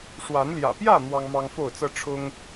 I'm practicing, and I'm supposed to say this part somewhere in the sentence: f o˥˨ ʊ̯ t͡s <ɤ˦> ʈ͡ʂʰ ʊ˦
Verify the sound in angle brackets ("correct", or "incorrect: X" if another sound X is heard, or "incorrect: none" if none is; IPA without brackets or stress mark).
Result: correct